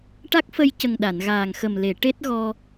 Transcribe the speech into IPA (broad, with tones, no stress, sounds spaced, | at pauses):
ʈ a˦˥ k̚ f ə˧ j c ə˨˩ ŋ ɗ a˨˩˨ n ɣ aː˨˩ ŋ x ə˨˩ m l e˨˩˨ ʈ e˦˥ t̚ ɣ ɔ˧